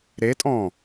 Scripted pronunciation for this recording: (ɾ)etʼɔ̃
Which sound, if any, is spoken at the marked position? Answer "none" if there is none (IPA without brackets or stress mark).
ɾ